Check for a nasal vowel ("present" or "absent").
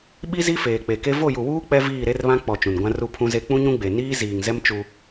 present